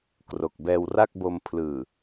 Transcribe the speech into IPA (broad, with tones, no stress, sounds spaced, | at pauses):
k r o˨˩ k̚ b ɛː˧ w r a˥˩ k̚ b o˧ m pʰ l ɯː˨˩